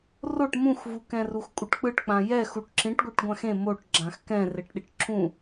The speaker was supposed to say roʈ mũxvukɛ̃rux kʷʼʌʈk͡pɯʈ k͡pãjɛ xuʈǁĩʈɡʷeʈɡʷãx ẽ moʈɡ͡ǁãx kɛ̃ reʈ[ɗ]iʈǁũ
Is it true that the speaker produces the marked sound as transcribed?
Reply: yes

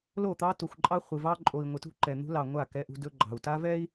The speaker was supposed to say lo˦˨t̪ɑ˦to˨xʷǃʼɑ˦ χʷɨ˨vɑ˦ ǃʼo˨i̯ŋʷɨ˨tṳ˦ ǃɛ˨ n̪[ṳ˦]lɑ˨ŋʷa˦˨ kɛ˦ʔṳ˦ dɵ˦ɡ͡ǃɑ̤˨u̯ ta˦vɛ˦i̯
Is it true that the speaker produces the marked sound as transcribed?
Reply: yes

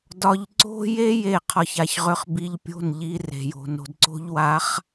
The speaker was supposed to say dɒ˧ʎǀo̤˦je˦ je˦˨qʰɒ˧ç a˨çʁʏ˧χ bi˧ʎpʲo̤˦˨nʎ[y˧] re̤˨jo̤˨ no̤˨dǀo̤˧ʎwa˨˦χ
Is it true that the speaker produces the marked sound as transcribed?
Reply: no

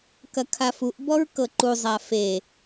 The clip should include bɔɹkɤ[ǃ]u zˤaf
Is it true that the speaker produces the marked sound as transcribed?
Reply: yes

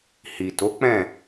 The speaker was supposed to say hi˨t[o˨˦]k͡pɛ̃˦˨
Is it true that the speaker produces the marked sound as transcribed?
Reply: yes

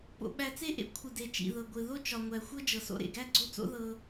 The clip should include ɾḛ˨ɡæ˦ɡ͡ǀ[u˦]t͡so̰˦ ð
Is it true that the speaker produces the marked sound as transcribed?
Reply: no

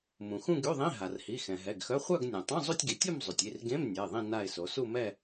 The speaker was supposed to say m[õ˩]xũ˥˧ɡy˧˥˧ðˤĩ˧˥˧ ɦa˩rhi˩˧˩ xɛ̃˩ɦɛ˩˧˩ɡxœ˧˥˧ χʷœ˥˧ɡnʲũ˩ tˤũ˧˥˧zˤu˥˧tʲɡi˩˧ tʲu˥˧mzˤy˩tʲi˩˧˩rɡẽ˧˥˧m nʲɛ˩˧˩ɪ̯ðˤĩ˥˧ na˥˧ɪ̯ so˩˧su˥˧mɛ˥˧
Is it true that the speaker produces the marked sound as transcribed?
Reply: no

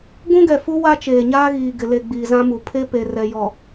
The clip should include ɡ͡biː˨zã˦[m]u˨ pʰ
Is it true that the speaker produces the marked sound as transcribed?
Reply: yes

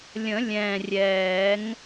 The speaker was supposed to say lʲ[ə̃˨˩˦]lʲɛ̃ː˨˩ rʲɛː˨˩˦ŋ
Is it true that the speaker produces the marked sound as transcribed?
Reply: yes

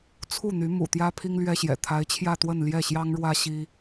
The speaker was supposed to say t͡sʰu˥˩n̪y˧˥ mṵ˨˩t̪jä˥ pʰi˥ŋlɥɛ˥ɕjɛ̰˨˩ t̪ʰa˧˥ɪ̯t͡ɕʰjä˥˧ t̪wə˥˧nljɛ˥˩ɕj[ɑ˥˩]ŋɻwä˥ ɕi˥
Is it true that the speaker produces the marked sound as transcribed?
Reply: no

